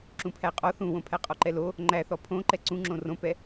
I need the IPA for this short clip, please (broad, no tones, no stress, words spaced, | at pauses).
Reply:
ǁũpʰæqʼɔ θũwõpʰæ qʼɔǃɛlo | ŋ͡ǃæθɔ pʰõ ǃɛǀũŋ͡ǁõ rõpɛ